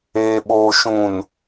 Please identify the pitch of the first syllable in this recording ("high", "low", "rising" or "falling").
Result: low